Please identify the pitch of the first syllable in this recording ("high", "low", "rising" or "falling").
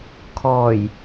low